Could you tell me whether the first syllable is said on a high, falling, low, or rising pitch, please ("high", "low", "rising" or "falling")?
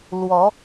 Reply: rising